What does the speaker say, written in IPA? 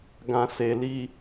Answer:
ɡã˨ se˨li˨

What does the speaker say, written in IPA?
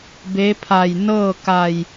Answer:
be˧˥pʰa˧˩j nɤː˥˨ka˧˩j

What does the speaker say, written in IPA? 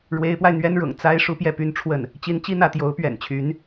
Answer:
ɻwe˧˥ɪ̯pwa˧ɪ̯n̪ɥɛ˥nɻʊ̰˨˩ŋ t͡sa˥ɪ̯ ʂu˥pjɛ˥˩py˥n ʈ͡ʂʰwə˥˩n | t͡ɕi˧˥nt͡ɕi˥˧n̪ä˥˩ t̪jo˧˥ʊ̯pɥɛ̰˨˩nt͡ɕʰy˧˥n

